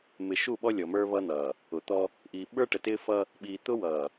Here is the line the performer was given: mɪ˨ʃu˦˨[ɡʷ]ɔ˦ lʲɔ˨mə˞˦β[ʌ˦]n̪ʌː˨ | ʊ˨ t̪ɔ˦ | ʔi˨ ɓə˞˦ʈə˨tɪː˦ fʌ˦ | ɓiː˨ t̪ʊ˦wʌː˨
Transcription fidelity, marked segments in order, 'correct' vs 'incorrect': incorrect: ɓ, correct

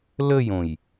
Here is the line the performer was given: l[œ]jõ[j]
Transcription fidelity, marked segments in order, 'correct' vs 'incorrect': incorrect: ə, correct

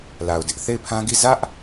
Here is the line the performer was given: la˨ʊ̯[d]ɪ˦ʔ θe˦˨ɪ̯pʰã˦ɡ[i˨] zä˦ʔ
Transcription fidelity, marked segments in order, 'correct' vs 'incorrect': correct, incorrect: i˦˨

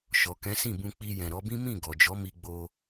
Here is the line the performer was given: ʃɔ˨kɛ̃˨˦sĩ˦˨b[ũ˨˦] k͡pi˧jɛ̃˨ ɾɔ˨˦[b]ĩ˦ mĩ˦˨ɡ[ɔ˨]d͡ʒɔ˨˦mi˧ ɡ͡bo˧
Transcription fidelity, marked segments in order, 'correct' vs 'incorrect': incorrect: ũ˧, correct, correct

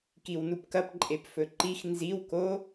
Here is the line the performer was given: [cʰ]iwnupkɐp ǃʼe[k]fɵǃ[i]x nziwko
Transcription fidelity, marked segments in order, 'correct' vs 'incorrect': incorrect: k, incorrect: p, correct

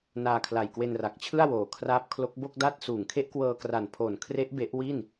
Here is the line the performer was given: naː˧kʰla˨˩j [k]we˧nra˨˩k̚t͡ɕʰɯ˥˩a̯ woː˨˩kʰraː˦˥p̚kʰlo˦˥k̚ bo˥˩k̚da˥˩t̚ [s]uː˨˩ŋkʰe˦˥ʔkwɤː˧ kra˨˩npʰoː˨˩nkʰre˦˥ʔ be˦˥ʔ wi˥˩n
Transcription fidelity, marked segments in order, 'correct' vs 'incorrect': correct, correct

